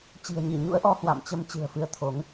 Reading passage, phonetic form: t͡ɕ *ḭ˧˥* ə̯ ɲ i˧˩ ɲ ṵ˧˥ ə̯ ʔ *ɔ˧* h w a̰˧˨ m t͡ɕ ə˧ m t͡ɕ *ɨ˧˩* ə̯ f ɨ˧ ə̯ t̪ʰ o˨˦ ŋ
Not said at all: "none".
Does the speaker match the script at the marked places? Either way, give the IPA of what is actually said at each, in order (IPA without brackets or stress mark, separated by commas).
i̤˨˩, ɔ˧, ɨ̤˨˩